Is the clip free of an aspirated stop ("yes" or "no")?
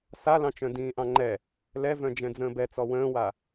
yes